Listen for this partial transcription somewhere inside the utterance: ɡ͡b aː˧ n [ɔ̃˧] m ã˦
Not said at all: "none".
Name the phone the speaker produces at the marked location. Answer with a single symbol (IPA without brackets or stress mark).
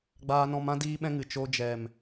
ɔ̃˧